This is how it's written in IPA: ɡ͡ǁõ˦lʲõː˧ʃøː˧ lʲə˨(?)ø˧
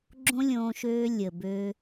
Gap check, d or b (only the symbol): b